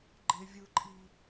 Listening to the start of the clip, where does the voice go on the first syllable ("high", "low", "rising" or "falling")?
high